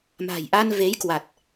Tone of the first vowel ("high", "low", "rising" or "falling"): low